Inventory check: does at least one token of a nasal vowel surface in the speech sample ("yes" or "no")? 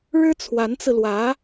no